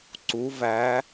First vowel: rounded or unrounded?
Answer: rounded